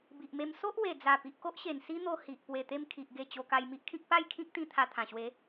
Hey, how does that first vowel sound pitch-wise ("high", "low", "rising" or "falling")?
low